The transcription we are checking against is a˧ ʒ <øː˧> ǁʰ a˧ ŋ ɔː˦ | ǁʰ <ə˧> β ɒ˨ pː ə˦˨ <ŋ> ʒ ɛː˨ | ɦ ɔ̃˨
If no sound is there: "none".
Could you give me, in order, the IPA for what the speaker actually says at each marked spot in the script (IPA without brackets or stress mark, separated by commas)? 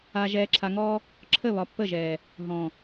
ɛː˧, ə˦˨, none